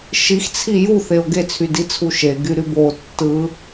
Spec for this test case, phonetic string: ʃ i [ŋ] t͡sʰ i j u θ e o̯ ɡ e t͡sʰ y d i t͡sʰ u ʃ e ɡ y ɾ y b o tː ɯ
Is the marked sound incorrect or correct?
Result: incorrect